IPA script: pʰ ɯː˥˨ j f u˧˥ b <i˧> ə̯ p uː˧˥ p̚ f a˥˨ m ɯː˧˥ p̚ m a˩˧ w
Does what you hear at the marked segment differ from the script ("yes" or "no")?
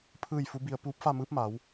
no